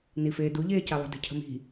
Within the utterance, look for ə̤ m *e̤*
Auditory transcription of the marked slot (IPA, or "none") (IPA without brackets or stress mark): i̤